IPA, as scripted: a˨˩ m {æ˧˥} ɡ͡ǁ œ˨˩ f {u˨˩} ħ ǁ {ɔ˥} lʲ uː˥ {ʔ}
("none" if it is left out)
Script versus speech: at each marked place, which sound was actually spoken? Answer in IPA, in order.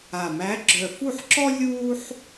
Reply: æ˧˥, u˥˩, ɔ˥, ħ

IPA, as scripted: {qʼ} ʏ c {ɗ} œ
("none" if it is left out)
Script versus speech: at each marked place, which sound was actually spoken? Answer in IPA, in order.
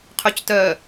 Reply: qʰ, t

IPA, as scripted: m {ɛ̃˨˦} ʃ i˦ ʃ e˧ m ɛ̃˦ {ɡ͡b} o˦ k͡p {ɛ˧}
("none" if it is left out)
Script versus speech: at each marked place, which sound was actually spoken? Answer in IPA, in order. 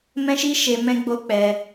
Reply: ɛ̃˦, ɡ͡b, ɛ˧

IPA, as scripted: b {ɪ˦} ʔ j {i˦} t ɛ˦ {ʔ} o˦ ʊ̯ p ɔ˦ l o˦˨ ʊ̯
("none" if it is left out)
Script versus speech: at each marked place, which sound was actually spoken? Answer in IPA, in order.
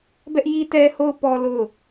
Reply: ɛ˦, i˦, h

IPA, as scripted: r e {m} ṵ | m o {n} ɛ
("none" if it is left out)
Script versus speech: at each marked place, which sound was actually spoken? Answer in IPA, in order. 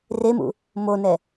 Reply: m, n

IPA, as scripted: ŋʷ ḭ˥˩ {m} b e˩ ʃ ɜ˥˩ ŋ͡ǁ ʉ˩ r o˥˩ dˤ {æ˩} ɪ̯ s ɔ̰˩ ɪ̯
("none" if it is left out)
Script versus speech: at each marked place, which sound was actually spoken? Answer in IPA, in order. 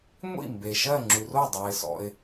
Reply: m, æ˩

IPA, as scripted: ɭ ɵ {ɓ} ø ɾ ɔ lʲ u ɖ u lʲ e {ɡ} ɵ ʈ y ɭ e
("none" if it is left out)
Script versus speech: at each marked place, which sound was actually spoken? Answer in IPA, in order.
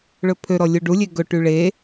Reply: pʰ, ɡ

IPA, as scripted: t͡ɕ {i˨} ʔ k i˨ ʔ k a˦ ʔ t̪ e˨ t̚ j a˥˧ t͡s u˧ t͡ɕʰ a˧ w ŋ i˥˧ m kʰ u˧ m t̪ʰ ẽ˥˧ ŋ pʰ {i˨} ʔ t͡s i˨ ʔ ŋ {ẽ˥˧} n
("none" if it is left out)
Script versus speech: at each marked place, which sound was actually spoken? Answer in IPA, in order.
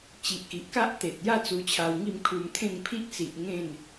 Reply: i˨, i˦, ẽ˥˧

